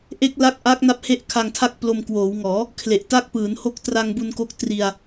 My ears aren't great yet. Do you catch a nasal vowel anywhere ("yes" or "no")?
no